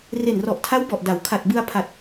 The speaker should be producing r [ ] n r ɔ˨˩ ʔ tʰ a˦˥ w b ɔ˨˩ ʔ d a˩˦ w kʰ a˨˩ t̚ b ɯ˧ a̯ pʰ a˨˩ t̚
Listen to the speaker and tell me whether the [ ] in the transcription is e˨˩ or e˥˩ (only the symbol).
e˨˩